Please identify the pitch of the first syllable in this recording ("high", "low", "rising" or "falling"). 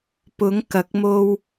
rising